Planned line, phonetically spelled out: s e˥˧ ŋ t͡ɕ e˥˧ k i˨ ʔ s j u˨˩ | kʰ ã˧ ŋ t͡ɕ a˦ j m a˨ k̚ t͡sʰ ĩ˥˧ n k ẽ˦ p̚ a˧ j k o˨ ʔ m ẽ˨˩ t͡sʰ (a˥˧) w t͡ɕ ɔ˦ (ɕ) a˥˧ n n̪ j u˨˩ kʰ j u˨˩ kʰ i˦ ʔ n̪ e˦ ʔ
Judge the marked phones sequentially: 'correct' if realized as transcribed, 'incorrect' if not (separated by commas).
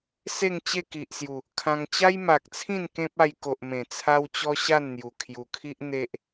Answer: incorrect, correct